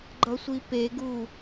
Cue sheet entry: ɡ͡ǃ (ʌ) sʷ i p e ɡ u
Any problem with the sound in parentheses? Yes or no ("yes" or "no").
no